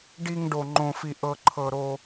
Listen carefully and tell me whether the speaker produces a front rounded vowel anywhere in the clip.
no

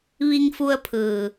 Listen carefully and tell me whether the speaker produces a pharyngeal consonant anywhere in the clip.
no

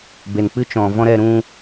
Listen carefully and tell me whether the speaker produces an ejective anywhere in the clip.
no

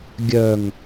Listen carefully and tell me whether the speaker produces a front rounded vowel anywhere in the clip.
yes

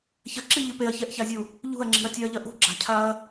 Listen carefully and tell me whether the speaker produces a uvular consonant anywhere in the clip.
no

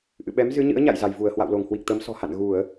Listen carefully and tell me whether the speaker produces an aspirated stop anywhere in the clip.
no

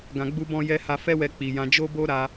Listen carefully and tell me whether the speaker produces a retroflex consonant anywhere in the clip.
no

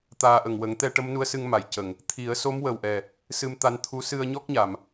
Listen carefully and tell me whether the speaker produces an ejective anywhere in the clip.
no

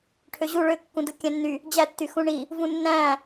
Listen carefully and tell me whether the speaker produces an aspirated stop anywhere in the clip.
yes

